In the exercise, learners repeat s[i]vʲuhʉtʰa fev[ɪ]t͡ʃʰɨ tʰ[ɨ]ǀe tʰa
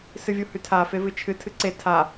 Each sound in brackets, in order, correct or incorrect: incorrect: ɨ, incorrect: ɨ, correct

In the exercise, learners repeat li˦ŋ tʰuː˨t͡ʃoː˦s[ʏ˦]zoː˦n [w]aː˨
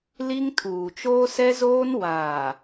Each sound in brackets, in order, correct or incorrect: incorrect: ɛ˦, correct

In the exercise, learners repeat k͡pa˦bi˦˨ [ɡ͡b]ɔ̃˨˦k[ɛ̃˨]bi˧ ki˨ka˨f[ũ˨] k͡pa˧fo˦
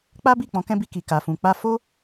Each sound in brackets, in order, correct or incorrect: incorrect: k͡p, incorrect: ɛ̃˦, correct

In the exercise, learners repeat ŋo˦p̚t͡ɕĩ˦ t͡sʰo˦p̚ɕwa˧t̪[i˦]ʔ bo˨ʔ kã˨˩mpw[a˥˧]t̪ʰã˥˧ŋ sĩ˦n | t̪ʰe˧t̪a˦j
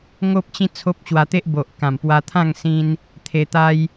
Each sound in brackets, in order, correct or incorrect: incorrect: e˦, incorrect: a˧

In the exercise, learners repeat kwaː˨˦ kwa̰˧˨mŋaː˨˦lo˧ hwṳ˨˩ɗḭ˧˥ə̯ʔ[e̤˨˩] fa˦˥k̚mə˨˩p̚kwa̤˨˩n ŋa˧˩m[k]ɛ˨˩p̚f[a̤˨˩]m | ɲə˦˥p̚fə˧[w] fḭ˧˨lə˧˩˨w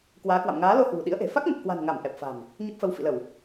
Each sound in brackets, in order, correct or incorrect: correct, incorrect: ʔ, correct, correct

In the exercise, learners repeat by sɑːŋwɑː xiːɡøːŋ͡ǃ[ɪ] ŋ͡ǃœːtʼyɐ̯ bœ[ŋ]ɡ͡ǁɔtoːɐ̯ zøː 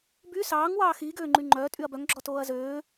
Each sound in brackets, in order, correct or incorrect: incorrect: y, correct

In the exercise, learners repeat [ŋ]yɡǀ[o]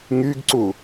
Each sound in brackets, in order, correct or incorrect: correct, incorrect: u

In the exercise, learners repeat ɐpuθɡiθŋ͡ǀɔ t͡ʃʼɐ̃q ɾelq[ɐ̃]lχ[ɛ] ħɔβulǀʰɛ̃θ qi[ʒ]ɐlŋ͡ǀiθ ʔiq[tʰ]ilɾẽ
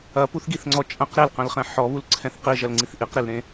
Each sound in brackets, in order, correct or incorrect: correct, incorrect: ɛ̃, correct, incorrect: ɾ

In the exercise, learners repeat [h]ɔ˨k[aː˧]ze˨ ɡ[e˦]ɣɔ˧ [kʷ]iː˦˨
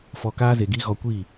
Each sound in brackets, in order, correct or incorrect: incorrect: f, correct, incorrect: i˦, correct

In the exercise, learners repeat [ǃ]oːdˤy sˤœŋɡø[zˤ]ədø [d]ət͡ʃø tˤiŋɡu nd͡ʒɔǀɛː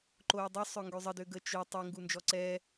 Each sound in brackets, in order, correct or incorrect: correct, correct, incorrect: ɡ

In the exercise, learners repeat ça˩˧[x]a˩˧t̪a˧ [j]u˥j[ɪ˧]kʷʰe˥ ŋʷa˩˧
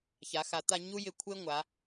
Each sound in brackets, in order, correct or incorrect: correct, incorrect: ɲ, correct

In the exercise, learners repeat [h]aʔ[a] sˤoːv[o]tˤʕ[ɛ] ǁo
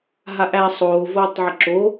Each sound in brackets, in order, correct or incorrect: incorrect: ɦ, incorrect: æ, incorrect: oː, incorrect: ə

